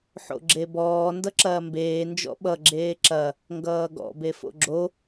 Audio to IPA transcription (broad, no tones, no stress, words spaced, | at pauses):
ħo̰ɡ͡ǁebɔː ndʌǁɐːmbeː nd͡ʒɔ̰ɓʌ ɡ͡ǁeːǁɐ | ŋɡʌːɡɔ̰ befo̰ɡ͡ǁo